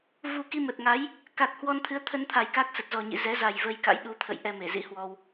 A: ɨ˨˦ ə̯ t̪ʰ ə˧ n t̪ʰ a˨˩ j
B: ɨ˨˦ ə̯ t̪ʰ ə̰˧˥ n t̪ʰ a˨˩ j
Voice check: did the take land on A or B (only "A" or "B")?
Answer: A